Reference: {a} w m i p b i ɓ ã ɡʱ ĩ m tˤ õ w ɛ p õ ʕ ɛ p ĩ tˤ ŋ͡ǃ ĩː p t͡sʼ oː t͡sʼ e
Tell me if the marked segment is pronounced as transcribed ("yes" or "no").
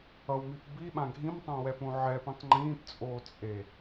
no